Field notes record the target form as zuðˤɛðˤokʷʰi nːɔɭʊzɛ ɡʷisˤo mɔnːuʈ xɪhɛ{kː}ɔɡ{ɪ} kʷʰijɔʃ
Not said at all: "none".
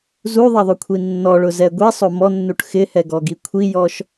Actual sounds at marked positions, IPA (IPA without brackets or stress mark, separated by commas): ɡ, i